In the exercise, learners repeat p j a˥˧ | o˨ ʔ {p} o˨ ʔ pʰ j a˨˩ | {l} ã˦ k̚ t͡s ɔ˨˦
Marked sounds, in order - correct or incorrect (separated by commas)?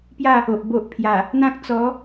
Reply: incorrect, incorrect